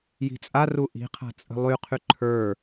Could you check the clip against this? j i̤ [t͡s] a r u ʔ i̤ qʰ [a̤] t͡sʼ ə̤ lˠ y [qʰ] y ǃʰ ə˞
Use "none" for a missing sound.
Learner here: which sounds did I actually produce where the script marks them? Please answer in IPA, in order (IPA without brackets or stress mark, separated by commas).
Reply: t͡sʼ, a̤, qʰ